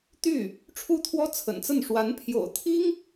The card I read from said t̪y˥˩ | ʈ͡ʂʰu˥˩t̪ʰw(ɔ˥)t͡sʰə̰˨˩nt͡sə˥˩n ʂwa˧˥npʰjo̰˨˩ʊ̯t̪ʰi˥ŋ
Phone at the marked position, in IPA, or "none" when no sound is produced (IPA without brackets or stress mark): ɔ˥